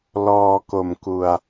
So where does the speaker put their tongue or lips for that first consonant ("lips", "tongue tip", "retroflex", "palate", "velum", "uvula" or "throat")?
tongue tip